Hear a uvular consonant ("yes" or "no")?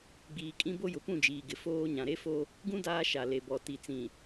no